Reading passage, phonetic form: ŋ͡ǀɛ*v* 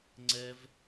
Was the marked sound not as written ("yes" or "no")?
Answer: no